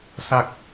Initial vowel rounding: unrounded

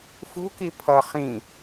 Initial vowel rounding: rounded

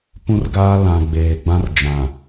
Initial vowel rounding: rounded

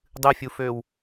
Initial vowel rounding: unrounded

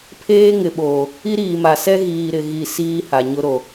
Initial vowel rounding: unrounded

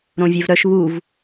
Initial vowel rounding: rounded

